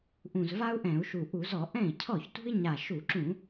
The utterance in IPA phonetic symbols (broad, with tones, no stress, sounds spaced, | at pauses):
ʔ ũ˨˩ z v a˥ u̯ ʔ ɛ̃˧˩˧ u̯ ʃ u˨˩ ʔ u˧˩˧ z ɔ˧˩˧ ʔ ɛ̃˥˩ i̯ cʰ ɔ˥˩ ç t ṳ˥ i̯ ɲ a˨˩ ʃ u˧˩˧ ǁ ũ˧˩˧